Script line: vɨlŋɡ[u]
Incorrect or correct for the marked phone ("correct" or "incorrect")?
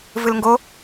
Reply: incorrect